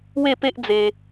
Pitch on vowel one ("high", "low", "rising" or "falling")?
falling